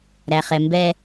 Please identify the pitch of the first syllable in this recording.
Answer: low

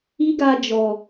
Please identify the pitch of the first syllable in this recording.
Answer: high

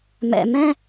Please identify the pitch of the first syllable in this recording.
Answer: low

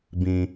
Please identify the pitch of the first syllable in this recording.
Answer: low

